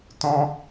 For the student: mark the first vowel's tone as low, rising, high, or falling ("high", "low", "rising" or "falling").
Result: high